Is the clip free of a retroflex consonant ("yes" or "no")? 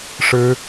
no